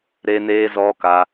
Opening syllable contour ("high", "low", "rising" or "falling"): high